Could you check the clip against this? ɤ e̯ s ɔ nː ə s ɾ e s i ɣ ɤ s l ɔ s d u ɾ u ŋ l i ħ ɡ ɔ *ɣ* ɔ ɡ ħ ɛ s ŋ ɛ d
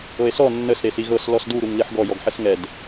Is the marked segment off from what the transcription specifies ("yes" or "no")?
yes